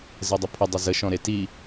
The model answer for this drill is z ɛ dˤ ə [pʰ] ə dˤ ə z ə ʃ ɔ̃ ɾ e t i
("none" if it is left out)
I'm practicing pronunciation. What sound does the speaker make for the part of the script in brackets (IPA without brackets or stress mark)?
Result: pʰ